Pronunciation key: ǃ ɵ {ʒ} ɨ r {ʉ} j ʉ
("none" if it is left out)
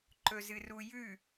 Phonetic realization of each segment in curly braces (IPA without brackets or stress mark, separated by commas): z, u